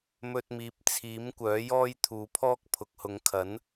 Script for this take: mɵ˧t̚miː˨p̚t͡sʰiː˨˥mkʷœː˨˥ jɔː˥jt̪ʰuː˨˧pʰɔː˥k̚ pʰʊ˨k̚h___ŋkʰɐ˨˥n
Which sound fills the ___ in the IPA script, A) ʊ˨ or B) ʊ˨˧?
B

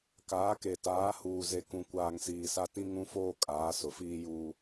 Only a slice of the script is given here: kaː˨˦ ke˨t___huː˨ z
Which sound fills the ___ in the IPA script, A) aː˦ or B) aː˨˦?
B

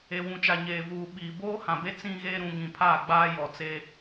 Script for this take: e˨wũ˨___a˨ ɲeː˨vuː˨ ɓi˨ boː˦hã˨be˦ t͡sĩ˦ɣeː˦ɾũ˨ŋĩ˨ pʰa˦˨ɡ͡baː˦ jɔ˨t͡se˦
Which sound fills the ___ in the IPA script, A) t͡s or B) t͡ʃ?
B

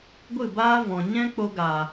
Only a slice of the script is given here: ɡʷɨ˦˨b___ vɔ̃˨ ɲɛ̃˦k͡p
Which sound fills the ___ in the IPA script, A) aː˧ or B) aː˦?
B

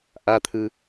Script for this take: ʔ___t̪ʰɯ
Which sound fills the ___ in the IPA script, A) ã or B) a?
B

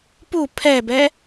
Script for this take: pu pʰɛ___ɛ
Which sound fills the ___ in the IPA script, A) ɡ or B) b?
B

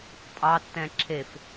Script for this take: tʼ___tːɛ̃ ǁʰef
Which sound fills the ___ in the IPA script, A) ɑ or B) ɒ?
A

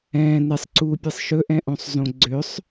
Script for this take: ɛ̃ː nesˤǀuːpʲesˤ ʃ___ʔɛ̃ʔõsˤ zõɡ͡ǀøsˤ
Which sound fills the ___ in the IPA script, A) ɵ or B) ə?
A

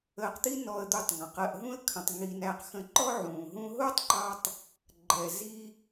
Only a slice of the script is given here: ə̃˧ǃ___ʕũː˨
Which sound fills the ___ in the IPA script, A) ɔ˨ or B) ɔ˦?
B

